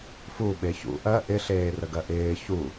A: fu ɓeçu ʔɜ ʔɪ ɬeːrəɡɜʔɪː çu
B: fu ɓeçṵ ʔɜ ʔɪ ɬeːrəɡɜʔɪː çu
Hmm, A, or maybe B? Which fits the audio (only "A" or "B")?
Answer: B